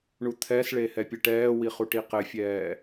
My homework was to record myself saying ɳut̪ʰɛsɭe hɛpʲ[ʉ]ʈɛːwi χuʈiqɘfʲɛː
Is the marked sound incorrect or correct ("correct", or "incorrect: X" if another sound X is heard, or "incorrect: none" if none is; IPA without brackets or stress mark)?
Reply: incorrect: ɘ